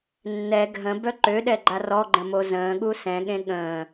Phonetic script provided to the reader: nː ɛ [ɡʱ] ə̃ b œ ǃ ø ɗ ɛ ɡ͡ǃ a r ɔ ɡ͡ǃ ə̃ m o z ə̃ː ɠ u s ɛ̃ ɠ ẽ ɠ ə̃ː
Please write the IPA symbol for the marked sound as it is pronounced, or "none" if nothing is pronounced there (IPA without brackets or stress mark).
ɡʱ